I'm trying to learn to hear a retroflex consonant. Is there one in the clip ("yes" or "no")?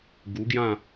no